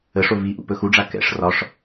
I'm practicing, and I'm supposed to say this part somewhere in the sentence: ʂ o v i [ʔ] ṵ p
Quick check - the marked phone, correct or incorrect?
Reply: correct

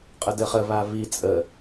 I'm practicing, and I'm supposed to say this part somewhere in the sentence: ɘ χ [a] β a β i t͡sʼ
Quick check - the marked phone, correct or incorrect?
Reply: incorrect: ə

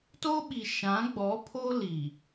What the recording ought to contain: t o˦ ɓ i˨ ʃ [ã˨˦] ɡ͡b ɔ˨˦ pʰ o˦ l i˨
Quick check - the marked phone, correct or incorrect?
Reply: correct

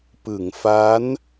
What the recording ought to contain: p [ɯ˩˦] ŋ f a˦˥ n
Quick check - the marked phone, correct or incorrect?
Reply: correct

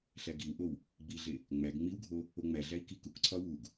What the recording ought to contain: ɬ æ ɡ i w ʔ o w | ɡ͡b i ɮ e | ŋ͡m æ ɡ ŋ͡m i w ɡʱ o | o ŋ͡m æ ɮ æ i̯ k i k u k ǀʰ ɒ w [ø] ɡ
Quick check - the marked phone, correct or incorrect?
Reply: incorrect: u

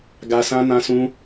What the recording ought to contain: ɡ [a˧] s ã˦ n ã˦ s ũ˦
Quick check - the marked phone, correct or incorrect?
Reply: correct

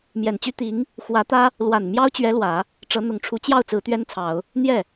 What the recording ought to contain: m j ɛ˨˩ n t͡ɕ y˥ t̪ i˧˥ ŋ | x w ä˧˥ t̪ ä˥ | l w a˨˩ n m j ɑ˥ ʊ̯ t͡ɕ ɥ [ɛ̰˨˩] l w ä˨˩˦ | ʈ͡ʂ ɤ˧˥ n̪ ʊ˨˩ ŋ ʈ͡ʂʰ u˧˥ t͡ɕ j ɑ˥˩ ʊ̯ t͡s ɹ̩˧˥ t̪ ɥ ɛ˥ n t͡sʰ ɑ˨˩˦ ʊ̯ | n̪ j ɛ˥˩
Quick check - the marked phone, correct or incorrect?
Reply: incorrect: ɛ˧˥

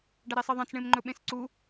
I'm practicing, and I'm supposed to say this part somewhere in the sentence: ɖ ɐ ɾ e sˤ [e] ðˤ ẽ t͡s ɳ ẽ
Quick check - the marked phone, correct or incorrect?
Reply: incorrect: ɨ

